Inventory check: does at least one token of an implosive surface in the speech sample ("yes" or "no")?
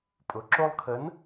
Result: no